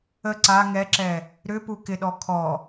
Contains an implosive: yes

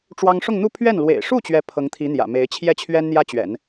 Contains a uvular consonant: no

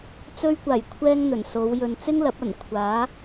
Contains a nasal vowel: no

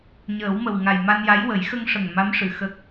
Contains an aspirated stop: no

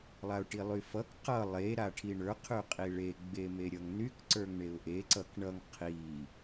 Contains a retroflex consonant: yes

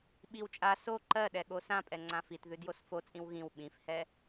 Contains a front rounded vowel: no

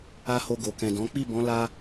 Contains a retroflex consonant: no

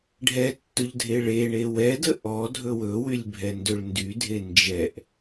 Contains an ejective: no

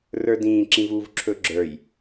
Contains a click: yes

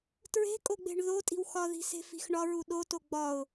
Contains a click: no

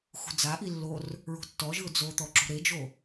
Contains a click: yes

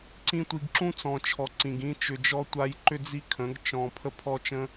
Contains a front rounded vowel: yes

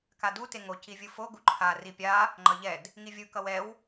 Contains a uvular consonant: no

